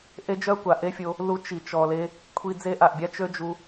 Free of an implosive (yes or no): yes